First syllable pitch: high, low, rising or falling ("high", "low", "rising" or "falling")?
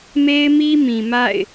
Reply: high